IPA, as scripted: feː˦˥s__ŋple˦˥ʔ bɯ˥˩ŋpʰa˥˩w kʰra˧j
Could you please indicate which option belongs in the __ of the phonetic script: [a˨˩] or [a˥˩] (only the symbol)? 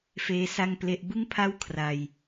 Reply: a˥˩